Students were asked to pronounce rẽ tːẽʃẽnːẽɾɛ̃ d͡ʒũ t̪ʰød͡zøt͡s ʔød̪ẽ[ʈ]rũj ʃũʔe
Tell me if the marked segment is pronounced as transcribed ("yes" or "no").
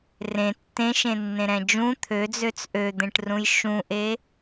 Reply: yes